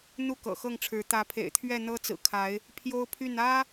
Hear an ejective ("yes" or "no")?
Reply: no